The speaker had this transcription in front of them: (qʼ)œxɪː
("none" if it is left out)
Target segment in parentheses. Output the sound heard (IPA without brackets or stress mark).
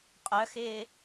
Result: qʼ